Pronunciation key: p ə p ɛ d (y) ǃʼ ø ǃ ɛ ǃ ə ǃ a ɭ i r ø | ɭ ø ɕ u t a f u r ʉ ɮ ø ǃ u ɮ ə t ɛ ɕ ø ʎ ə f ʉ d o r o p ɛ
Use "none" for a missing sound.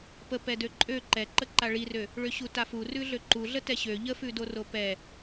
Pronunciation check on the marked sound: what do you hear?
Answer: ø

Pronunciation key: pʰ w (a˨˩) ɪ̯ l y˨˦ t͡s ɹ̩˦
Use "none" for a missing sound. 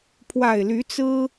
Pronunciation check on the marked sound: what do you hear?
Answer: a˨˩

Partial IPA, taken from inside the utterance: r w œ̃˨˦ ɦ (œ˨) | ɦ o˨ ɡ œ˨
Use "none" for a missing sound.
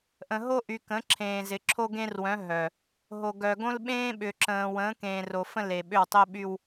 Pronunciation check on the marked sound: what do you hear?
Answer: œ˨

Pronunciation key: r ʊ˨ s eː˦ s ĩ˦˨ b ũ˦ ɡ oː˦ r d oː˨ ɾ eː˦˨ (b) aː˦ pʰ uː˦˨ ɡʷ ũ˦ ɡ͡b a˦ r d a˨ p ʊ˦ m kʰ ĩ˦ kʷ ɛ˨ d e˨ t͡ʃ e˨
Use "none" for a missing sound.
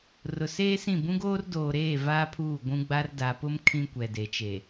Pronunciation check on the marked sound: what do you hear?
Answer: v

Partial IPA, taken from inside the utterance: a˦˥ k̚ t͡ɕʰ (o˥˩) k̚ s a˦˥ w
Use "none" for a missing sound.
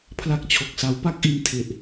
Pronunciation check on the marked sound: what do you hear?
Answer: o˨˩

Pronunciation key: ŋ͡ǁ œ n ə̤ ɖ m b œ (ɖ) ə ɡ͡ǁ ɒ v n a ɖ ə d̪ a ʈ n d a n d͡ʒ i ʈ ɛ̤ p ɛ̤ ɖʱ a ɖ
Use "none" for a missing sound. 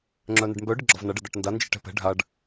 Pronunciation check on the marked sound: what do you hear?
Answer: ɖ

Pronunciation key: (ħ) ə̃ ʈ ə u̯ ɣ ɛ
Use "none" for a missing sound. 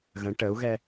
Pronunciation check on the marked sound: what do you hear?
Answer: ɣ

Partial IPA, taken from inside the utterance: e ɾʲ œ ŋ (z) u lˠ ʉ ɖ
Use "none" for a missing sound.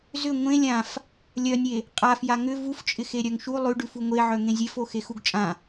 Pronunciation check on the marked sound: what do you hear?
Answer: ʃ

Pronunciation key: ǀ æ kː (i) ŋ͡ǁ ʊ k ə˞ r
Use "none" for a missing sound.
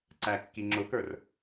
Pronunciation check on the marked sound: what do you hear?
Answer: i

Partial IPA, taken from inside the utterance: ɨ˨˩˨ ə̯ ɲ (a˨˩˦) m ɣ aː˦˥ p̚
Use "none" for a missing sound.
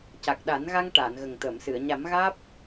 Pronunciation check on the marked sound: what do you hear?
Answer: a˨˩˦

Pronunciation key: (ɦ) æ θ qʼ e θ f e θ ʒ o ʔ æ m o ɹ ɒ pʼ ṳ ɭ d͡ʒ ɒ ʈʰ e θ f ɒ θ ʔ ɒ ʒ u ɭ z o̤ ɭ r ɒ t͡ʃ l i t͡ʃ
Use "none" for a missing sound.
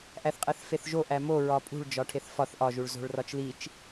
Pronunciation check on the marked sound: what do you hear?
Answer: ʔ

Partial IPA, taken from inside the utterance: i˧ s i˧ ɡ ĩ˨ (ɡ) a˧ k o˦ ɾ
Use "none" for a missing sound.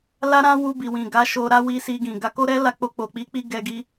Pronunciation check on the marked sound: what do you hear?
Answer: ɡ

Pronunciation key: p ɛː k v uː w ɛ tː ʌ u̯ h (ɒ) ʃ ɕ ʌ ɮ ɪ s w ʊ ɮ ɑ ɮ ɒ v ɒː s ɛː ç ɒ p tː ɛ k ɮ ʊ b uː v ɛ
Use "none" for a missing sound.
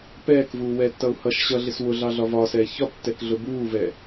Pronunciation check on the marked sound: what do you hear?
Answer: ʌ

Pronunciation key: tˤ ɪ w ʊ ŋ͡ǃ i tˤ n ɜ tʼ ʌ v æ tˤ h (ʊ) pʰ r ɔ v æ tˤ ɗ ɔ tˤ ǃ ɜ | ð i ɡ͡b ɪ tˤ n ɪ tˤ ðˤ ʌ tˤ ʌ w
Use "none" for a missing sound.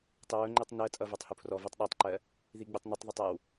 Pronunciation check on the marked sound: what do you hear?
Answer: u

